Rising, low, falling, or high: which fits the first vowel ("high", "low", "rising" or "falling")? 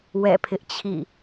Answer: falling